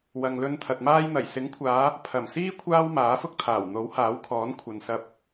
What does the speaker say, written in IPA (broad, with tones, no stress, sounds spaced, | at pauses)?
w ɐ˨ ŋ l ɵ˧ n t̪ʰ ɐ˨ t̚ m aː˧ j n̪ ɐ˨˩ j s ɪ˨˥ ŋ kʷʰ aː˨˧ | pʰ ɐ˨˩ m s iː˥ kʷʰ aː˥ w m aː˨˥ f ʊ˥ k̚ t̪ʰ aː˨˩ w n̪ o˨˥ w h aː˨˥ w kʰ ɔː˨˥ n kʷʰ ɐ˨ n s ɐ˧ p̚